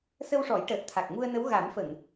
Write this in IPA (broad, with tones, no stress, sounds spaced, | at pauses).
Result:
s ə˧ w ʂ ɔ˨˩˦ j ʈ əː˨˩ t̚ t̪ʰ a˨˩ k̚ ŋ u˧ ə̯ n ə˧˥ w ɣ a˨˩˦ m f ə˨˩˨ ŋ